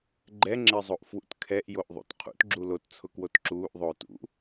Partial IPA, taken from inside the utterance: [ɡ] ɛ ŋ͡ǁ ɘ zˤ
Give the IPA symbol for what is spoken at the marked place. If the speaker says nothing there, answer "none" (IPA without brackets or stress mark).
ɡ͡ǃ